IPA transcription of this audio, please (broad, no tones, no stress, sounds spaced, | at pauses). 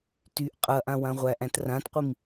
t y ʔ qʼ ɐ ʔ ã w ã ʁʷ æ ʔ æ̃ t r ã t qʷ i m